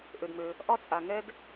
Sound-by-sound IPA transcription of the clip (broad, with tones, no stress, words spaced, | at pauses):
ʔø˩dmø˩ | ʔɒ˥t͡sʼa˩ ŋɛ˥d